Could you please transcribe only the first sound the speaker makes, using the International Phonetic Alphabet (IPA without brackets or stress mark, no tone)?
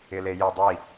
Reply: ɪ